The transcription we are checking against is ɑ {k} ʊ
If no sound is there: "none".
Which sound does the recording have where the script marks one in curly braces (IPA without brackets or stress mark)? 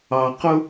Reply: q